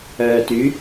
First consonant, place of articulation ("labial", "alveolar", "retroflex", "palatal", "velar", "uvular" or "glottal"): alveolar